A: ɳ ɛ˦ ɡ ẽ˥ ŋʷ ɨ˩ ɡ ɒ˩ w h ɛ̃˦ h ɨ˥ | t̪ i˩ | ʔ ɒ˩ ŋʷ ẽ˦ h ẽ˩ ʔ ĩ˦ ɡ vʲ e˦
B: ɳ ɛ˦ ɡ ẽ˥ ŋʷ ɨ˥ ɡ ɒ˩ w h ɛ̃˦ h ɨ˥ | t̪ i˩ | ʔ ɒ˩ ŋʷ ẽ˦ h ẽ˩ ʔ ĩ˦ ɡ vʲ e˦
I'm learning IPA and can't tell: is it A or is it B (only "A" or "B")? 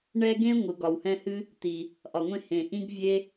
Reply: A